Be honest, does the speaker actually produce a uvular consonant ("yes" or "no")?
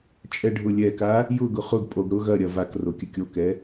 yes